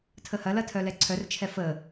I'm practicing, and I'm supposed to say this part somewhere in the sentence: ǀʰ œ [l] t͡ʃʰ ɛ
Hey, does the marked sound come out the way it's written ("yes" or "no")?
no